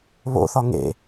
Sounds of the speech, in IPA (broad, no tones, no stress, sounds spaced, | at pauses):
β o̰ θ ɒ ŋ ḛ